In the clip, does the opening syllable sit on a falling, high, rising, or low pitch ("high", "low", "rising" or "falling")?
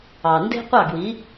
low